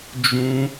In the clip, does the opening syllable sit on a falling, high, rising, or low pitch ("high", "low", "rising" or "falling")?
high